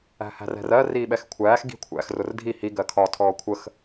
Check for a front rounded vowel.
absent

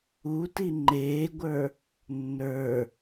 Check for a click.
present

